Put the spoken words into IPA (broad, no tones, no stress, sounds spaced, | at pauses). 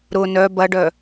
ɾ ʊ n œ b ɐ ɖ œ